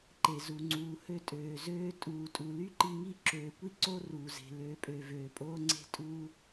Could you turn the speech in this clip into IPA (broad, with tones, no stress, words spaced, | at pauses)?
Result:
ǃe˨zu˨ŋ͡ǀuː˨ hø˦tʼøː˨zøː˦ tʼuː˨tʼu˨ ly˦ǃi˧ŋi˦ ǁøː˨kʷi˦ǀo˦ ruː˨ze̤˨ løː˨pʼø˨ vøː˨pʼoː˦ŋ͡ǀe̤˦ tʼu˧